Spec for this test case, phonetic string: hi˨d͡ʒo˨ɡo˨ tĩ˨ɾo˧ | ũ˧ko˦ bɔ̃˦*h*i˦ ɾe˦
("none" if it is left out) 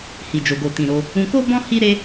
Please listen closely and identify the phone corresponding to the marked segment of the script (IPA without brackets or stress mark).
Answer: h